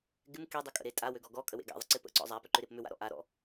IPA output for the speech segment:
ɡ ɪ m k e dˤ ɪ kʼ ə̰ ɾ e tʼ a w ø ɡ ɔ ɡ ɔ kʼ ə w ḛ ɡ a̰ ðˤ ə̰ ǀ ɪ p ə̰ ǀ ɔ̰ zˤ a p ʏ ǃ ʏ ɾ e p m ʏ w a̰ ɾ ɔ̰ ʔ a ɾ ɔ̰

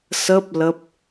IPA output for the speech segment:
s əː˦˥ p̚ l ə˦˥ p̚

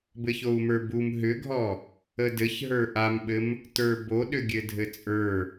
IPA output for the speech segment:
b ɘ ç o u̯ m ə˞ b u m ɦ ʏ ɡʱ ɔ | ə d ɘ ç ɦ ə˞ ʔ a m ɓ ɘ m | t ə˞ b o ɗ ʏ ɡʲ ɘ dʱ ɘ t͡sʼ ə˞

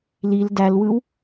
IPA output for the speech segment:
l i l d æ l w ɯ w

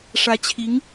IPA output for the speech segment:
ʂ ä˧˥ t͡ɕʰ i˧˥ ŋ

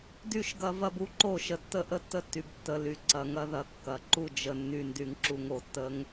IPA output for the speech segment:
d y˦ ʃ ɡ ɐ˦ v ɐ˦ b u˦ ǃ o˦˨ ʃ ə˨ tː ə˦ ʔ ə˦ tː ə˦ tː y˨ b tː ə˨ l y˨ ǀ ɐ˨ ŋ ɐ˦ ð ɐ˨ kː ɐ˨ ǃ u˦˨ d͡ʒ ə˨ nː y˨ n d y˨ ŋ ǁ u˨ ŋ o˨ tː ə˦ ŋ

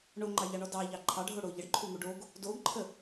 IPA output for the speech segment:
ɳ o ŋ͡ǃ ɑ ʎ ɑ ɳ ɔ d ɑ ʎ ɑ ǃʰ ɑ ɖʱ o ɽ o ʎ ə ɖ ǃʰ u ŋ u ɖ o ɡ | d o ɡ ǃʰ ə

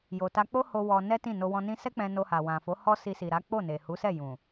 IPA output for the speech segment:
j o˨ t a˧ k͡p o˦ h o˧ w ɔ˧ n ɛ˦ t ĩ˦˨ n o˧ w ɔ̃˧ n ĩ˧ s ɛ˦ k͡p ɛ̃˧ n o˧ h a˨ w ã˨ f o˨˦ h ɔ˦ s i˧ s i˨ ɾ a˨˦ k͡p o˦˨ n e˨ h u˨˦ s ɛ˦˨ j ũ˨

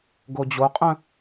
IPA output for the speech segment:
ɡ o d͡ʑ o qʼ œ̃

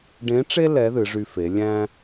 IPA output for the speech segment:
ɖ ẽ˧˥ ʈ͡ʂ e˥ l ɛ˧˥ ð ɨ˩˧ ʐ y˧ f e˩˧ lʲ æ̃˥

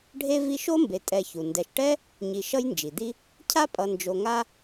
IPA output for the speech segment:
ɖʱ e˥ v i˦ ʃ o˥ m b e˨ tʼ ɛ˨ ç u˩ n d ɛ˨ ʃ ʈ ɛ˥ | ɲ i˨ ʃ ʌ˥ j n d͡ʒ i˩ d̪ i˦ | cʰ a˥ pʼ ʌ˨ n d͡ʒ o˨ ŋ a˦

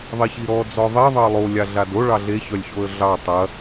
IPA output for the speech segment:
ðˤ i ç i ɾ ɔ d͡z ɔ ðˤ e ðˤ ɑ lˠ o lʲ a ɮ a d o ɭ ɑ ɮ e ç œ lʲ ç o ə̯ ɮ ɑ tˤ ɐ

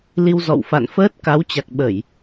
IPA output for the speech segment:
l i˧ w z ɔ̰˧˨ w f a̰˧˨ n f əː˦˥ t̚ k a˨˦ w t͡ɕ a˨˩ k̚ ɓ ə˧˩˨ j

